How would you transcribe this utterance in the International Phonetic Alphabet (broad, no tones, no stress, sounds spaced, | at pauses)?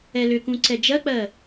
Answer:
ɛ l ʏ k ũ ǀ ɛ d͡ʒ ɜ k͡p ɜ